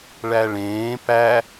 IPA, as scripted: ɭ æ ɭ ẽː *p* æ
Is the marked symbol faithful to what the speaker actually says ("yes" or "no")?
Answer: yes